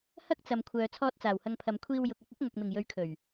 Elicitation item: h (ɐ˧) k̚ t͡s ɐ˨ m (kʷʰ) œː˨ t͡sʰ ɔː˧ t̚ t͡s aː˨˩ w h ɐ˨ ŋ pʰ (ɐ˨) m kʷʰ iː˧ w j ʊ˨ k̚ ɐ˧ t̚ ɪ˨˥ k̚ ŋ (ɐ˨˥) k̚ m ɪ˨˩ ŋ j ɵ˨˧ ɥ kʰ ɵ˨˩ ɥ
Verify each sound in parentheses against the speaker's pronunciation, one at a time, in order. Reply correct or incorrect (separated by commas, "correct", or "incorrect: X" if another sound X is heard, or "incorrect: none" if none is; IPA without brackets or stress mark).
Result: incorrect: ɐ˥, correct, correct, incorrect: ɐ˨